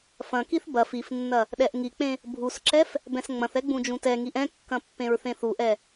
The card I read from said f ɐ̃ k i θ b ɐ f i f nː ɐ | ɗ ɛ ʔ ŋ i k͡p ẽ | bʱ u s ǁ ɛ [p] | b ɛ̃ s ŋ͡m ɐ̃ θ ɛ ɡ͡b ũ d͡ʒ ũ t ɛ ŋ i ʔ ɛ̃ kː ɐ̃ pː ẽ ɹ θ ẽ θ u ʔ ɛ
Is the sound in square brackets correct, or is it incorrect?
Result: incorrect